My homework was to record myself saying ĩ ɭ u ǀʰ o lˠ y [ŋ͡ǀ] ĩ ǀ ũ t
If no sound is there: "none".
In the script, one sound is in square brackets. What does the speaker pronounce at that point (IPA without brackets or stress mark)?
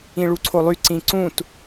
ǀ